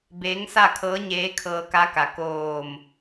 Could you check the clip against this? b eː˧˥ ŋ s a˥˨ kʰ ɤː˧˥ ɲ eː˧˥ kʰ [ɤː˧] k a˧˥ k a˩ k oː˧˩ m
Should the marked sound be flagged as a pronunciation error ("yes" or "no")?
no